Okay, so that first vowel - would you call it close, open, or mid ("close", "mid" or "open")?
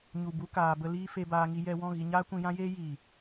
close